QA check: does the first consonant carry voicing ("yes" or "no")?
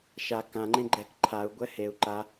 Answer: no